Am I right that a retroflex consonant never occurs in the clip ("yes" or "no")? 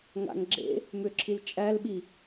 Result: yes